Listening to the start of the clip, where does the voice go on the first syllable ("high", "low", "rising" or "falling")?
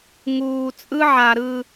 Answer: low